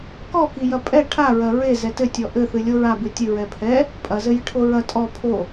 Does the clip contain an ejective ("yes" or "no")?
yes